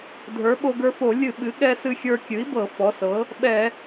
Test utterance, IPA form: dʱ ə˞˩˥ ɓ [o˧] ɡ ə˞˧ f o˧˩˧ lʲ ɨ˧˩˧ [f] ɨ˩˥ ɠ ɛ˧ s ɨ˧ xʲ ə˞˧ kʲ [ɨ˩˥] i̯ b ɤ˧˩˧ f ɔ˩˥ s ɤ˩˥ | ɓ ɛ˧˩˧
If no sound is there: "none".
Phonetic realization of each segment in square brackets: o˧, ɓ, ɨ˩˥

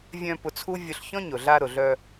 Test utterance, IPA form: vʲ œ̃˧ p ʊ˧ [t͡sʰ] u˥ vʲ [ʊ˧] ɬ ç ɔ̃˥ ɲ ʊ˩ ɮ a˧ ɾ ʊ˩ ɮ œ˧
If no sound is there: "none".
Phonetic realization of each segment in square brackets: t͡sʰ, ʊ˧

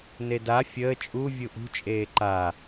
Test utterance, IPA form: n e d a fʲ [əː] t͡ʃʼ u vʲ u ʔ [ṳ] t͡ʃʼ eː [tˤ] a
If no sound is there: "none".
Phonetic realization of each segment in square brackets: əː, ṳ, ǃ

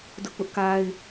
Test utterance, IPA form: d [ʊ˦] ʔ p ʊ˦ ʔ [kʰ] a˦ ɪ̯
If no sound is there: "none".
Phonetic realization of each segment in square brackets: ʊ˦, k

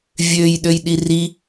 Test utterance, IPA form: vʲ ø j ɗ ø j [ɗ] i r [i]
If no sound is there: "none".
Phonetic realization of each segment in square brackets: ɗ, i

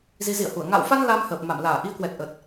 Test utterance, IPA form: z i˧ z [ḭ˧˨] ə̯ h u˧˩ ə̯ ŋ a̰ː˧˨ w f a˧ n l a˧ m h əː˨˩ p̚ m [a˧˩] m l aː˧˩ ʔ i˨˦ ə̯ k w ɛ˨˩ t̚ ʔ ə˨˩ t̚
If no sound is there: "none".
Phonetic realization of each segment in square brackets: ḭ˧˨, a˧˩

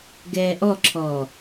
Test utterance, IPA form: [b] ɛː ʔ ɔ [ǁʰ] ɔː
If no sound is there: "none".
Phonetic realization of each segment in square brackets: ɡ, ǁʰ

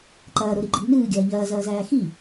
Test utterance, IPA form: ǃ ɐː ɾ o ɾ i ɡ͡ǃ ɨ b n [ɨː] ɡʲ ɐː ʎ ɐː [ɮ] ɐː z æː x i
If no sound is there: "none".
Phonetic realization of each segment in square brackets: ɨː, z

